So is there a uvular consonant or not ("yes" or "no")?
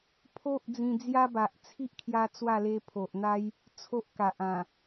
no